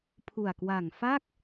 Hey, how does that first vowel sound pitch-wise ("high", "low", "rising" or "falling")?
low